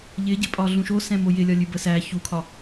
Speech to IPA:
ʎ ɪ ɟ ɪ pʼ ɒ ɮ ũ ʃ o s ɛ̃ m o j ɪ lʲ ɒ lʲ ʉ b ə s æ ç u kʰ ɒ

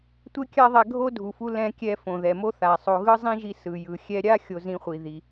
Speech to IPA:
tʷ e˥ kʲ a˥ ðˤ ɛ˧ ɡʱ o˥ dʱ u˩ f u˧ l ɛ̃˧ kʲ ɛ˧ f õ˩ ð ɛ˩ m o˥ θ a˩ sˤ o˧ ɣ ɯ˥ zˤ ĩ˥ ʒ i˧ s ɯ˩ j ɯ˩ xʲ ɛ˧ ɾʲ a˥ xʲ o˧ z ĩ˧ χʷ i˩ ð i˩

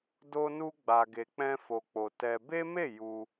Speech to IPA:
d o˧ n u˧ ɡ͡b a˨ ɡ e˨ k͡p ɛ̃˧ f o˨ k͡p o˨ t ɛ˧ b e˦ m e˦˨ j u˧

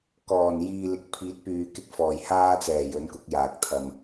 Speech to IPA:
k ɔː˨˩ n j iː˨ l ɪ˨ k̚ pʰ iː˨˥ t̚ p yː˨ k ɪ˧ k̚ f ɔː˨˩ j h aː˧ t͡s ɛː˨˩ j ɵ˨˥ n k ʊ˧ k̚ j aː˨ k̚ t̪ʰ ɐ˨ m

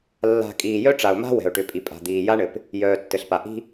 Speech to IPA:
lː a̤˨ kʼ iː˨ j œ˦ ʈ͡ʂ a˨ ʊ̯ m a̤˦ w ɛ̤˨ ʊ̯ ʈ ʏ˨ pʼ i˨ pʼ a̤˨ d̪ iː˨ j a˦ ɳ ɘ˨ p | j œː˨ tː ɘ˨ ɬ p a˨ ʔ i̤˦

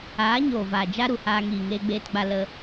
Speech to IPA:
aː˨˦ ɲ oː˨ v aː˨ d͡ʒ a˧ ɾ u˨ h aː˧ ŋ iː˨ ŋ eː˧ ɡ͡b eː˧ t ɡ͡b a˧ l ə˧

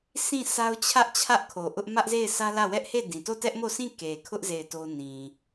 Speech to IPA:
sʰ ĩ˦˨ sʰ a˦ ʊ̯ t͡ɕʰ ä˦ ʔ t͡ɕʰ ä˦ ʔ kʰ o˨ ʔ ʊ˦ ʔ m ä˦ ʔ z e˦˨ ɪ̯ sʰ ä˦ l ä˦˨ w ɛ˦ ʔ h e˦˨ d ĩ˨ t o˦˨ t ɛ˦ ʔ m o˦˨ s ĩ˦˨ k e˨ kʰ ʊ˦ ʔ z e˦˨ ɪ̯ t o˦ n ĩ˨

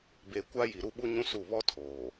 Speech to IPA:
b e˨ kʷ a˦ j i˨ ɾ u˦ ɓ u˦ ɲ ũ˦ s u˦˨ β ɔ˦ tʰ oː˨

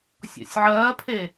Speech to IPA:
sʲ ɔ̰ sʲ ʕ ɜː pʰ e

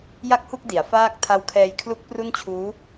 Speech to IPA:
j a˥˩ k̚ h u˥˩ k̚ d i˩˦ a̯ f aː˥˩ k̚ tʰ a˦˥ w kʰ ɛː˧ j kʰ l u˦˥ k̚ p r u˥˩ n t͡ɕʰ uː˦˥

